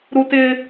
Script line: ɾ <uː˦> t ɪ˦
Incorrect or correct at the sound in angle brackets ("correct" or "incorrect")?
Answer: incorrect